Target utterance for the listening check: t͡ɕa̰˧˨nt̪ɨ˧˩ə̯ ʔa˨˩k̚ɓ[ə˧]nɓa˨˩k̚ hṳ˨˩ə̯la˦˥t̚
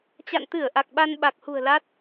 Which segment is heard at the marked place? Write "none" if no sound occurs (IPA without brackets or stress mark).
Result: a˧